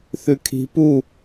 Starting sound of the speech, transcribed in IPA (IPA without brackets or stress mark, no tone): θ